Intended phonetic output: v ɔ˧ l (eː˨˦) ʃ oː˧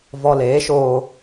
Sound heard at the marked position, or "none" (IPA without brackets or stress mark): eː˨˦